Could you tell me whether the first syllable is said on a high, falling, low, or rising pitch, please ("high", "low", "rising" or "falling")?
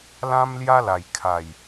high